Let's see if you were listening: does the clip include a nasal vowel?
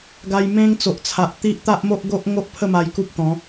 yes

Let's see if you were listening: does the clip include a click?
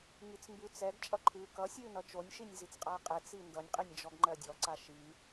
yes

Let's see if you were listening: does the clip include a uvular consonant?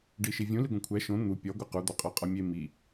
yes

